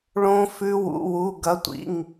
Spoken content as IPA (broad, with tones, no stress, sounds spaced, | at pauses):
ɭ õ˦˥ f ʉ˦˥ w ṵ˧˥˧ w u˧˥˧ ɡ ɐ˧˥˧ tʷ ḭ˧˥˧ ŋ